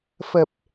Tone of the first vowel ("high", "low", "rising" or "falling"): low